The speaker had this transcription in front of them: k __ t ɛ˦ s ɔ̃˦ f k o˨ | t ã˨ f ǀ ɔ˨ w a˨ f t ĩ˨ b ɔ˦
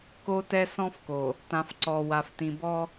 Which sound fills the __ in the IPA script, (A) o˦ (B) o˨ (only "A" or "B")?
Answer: A